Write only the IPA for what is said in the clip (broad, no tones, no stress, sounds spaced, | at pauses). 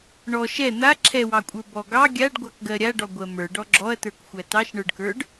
ɳ ɔ ʃ ɛ n̪ a ǁʰ ɛ w ɑ kʷʼ ə˞ b ɔ ɡ ɑ ɡʲ a ɖ ɡʷ ɑ k ɡ ɜ ɾʲ a ɖ ɔ ɡʷ ɜ m ə˞ ɖ ɔ ɡ͡ǁ ɔ ɐ̯ t ə˞ k xʷ æ t ɑ ʃ ɳ ə˞ ɖ k ə˞ ɖ